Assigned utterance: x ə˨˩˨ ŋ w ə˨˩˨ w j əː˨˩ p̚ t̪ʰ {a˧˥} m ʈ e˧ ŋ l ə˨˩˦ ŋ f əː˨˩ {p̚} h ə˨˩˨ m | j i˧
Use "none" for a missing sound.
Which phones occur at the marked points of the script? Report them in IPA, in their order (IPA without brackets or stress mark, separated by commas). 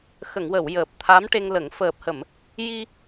a˧˥, p̚